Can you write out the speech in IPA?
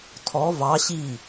tʰɔ vɑ ɕi

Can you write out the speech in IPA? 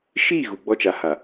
ʃi˦˨ ɣu˨ɡ͡bɔ˦t͡ʃa˨ ha˨

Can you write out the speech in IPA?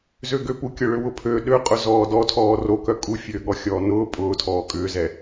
zøɡøpu kʲʊɭʏwʊpʰø ɗøqʼʊ zɔːdɔtʰɔː rokœ kʼufʲøː ɠɔxʲɔːnʊː pʼʊːtʰɔː kʼʏːzɛ

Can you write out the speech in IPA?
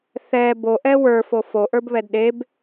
θɛ boʔɛ wə˞fo foʔə˞bβɛd ɗeb

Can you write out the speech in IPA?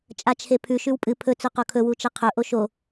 t͡ʃʼat͡ʃʰepʰʉ ʃʉwpʼɨ pʰɵ t͡sɵqokʰɵ wut͡ʃɐqʰɵ ʔoʃo

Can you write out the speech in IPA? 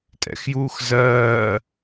tʼɛ̰xjuːxzɜː

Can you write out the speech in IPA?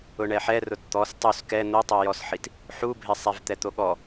ʊɳɛħɛ rʊtt̪ɔs tˤus kɛ n̪otˤojɔsħit | ħubʱɪsˤɛv t̪ɛt̪oɠɔ

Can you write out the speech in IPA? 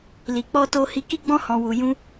li˨k͡pɔ˧ to˧hi˧ ki˧ɡ͡bɔ̃˧hɔ̃˨wu˨ jũ˧

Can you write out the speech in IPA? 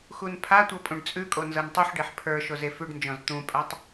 xunpʰatʷɤ pʼũɖt͡sʼʉkʼo nzɤntˤuħɖeħ pʰə˞ ʃozefʉɖnd͡ʒɔ̃z t̪ũpʼatˤ

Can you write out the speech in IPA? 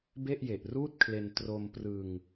be˥˩ʔje˨˩ʔruː˥˩t̚kʰle˧n tro˧mprɯ˧ŋ

